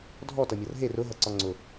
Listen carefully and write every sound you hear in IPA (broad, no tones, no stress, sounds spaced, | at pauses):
dʱ ɔ t ʌ mʲ ʌ r ɦ e r ʊ ɦ ʌ ǀ ɒ ŋ͡ǀ ʊ